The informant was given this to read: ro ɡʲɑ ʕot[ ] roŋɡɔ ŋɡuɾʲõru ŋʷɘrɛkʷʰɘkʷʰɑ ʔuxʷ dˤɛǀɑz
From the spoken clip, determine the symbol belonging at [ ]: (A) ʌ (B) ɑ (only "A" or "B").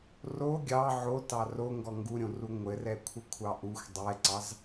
B